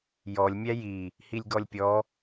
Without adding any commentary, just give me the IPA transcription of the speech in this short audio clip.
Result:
j ɔ lʲ mʲ æ j i | h i lʲ ɡ ɔ lʲ pʲ ɔ

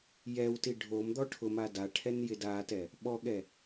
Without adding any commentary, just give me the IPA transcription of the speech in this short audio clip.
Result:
j ɛ w t i ɖʱ o m d̪ ɔ ʈʰ ʊ m a d a ʈʰ ɛ n j ɪ d a t ɛ | ɓ ɔ ɠ ɛ

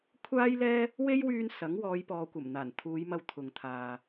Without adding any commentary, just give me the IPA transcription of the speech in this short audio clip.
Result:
kʷʰ aː˥ j l ɛː˥ | w e˥ j w yː˧ n s ɐ˨˥ ŋ w ɔː˨˧ j p ɔː˨ kʷ ɐ˨˩ m n̪ aː˨˩ n t̪ʰ uː˨˧ j m ɐ˧ w t̪ʰ ʊ˨ ŋ t̪ʰ aː˨

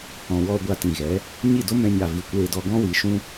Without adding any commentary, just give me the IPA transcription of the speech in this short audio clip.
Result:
h ɔ̃˨ w ɔ˧ ɡʷ a˧ t ĩ˨ ɣ ɛ˨˦ | ɲ i˦˨ d o˦ m ɛ̃˧ ɲ a˨ v i˨ kʷ eː˧ d ɔ˧ ɡ ɔ̃˦ w i˨˦ ʃ ũ˦

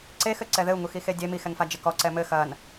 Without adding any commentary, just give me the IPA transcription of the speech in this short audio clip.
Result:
ǀ e x ɘ ǀ ɛ ð ɘ u̯ ŋ u x i x e dʲ e m i x ɛ ŋ f a d͡ʒ ɘ k ɔ ǀ ɛ m ɘ x ɐ n

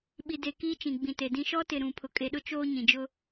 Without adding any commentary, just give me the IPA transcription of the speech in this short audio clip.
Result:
ɓ i˨ d e˨ k iː˦ t͡ʃ ĩ˨ ɡ͡b ĩ˨ t e˨ d ĩ˦ ʃ ɔ˦ t ɪ˨ ɾ ũ˨ pʰ ʊ˨ kʼ e˨ ɗ ʊ˦ t͡ʃ oː˦ ɲ ĩ˨ d͡ʒ ʊ˦

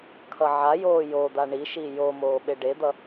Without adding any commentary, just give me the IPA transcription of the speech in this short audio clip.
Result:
kʰ ʌ ʕ a j oː j o d̪ a ɳ i ʃ i j o m oː ɓ e ɖ e d̪ ʌ

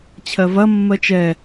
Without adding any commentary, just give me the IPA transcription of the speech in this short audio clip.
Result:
t͡ɕʰ ɜ v ɐ mː ɜ t͡ʃ ɛ

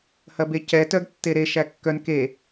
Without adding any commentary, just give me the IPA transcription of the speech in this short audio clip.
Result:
h ɐ b e c ɛ t œ ɡ tː e ɾ e ʃ æ kː œ n k e

